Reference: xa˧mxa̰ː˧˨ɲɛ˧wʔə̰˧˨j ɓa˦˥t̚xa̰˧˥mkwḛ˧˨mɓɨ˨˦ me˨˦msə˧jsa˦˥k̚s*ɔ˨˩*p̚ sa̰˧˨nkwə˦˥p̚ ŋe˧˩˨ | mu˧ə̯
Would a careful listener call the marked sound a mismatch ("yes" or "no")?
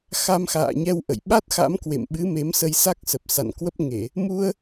yes